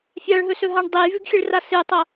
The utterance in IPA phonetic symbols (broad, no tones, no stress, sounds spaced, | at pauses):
fʲ a ɭ ɦ ɵ s ɵ ɦ a ɳ dˤ e j v ʉ ɡ xʲ ɨ ɭ r a s ɨ tˤ ɐ